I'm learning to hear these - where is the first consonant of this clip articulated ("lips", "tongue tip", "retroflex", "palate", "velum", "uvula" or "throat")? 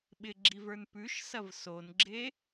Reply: lips